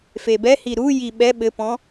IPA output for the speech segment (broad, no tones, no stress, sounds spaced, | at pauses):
f e b ɛ h i ɾ u j i ɓ ɛ ɓ ɘ p ɔ̃